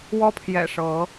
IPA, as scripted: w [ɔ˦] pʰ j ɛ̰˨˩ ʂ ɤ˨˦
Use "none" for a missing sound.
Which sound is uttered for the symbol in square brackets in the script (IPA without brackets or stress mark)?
ɔ˦